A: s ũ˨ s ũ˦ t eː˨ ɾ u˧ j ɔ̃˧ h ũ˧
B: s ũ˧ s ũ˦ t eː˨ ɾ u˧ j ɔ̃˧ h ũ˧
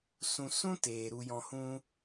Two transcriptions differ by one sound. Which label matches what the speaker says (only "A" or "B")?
B